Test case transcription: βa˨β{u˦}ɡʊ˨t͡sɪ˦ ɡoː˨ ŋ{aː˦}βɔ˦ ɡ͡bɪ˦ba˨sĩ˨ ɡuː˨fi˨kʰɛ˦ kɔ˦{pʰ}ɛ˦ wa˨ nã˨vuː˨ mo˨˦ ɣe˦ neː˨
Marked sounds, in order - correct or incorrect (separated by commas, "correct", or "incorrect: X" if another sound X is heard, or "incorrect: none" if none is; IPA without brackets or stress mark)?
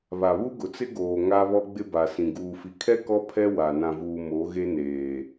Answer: correct, incorrect: a˦, correct